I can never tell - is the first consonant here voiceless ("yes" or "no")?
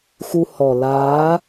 yes